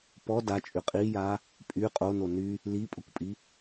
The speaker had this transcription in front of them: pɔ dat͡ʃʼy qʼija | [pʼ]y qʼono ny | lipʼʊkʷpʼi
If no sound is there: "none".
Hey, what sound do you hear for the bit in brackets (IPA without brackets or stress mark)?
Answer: pʼ